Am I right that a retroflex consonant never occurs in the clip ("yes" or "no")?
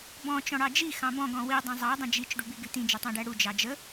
no